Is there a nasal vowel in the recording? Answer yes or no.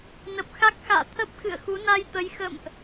no